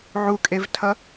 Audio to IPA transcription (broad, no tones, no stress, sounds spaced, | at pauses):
ʕ u kʼ e v tʰ ʌ